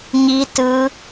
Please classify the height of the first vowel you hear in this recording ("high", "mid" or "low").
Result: high